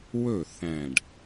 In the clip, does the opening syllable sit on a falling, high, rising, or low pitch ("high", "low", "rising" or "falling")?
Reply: falling